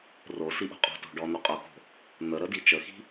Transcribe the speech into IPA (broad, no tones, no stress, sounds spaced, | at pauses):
r o s i ʔ o̤ qʼ o̤ t o̤ ɖ ɔ n̪ o qʼ o x o̤ | n̪ ə ɾ ə d i t͡ʃ ə x i̤